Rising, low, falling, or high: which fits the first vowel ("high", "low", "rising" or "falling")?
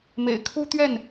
low